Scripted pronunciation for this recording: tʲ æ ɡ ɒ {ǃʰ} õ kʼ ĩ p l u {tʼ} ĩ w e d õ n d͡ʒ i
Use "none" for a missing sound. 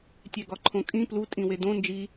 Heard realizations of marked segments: ǃʰ, tʼ

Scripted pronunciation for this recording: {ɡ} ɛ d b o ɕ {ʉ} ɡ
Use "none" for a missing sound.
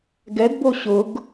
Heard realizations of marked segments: ɡ, ʊ

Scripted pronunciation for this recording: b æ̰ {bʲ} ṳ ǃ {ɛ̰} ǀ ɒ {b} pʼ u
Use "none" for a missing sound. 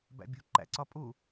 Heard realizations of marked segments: bʲ, æ̰, none

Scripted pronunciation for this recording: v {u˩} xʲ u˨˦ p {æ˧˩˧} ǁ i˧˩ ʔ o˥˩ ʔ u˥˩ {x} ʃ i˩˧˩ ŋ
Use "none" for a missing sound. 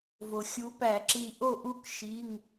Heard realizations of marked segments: o˩, æ˧˩˧, k

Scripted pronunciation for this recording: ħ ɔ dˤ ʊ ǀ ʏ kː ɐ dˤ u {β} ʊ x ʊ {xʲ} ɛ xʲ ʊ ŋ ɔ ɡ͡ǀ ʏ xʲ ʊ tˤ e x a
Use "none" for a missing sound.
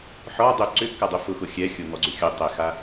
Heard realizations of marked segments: f, xʲ

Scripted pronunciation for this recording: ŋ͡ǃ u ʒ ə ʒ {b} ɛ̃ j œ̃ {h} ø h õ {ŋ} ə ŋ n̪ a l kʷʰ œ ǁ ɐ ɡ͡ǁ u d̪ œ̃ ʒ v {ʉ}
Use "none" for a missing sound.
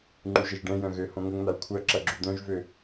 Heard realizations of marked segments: ɖ, ɣ, ŋ, ø

